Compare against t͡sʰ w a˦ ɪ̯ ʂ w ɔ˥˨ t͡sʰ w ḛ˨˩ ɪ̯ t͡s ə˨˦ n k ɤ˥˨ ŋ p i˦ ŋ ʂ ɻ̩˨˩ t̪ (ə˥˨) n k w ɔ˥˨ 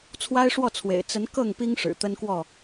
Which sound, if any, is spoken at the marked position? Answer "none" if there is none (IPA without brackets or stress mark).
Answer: ə˦